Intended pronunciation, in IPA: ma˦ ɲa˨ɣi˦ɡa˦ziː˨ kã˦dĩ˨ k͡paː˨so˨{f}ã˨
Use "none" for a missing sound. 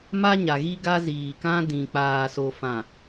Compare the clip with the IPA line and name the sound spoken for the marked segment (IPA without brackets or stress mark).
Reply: f